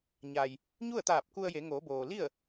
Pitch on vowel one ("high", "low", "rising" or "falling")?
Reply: low